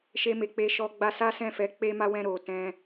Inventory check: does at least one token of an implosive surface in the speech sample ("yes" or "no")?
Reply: no